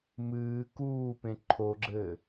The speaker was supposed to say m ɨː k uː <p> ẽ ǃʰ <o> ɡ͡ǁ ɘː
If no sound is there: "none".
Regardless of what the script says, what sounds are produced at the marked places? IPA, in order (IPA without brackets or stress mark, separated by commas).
p, o